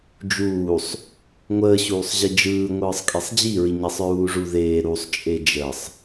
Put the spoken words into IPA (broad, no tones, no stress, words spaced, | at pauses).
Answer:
d͡ʒuːsˤ | ŋʷəːɕuːsˤʑi d͡ʒɯːŋʷɯːsˤ kʼesˤd͡ʑiɹi ɲesˤɹuːʐuðeː ɾusˤt͡ʃʼe d͡ʒəsˤ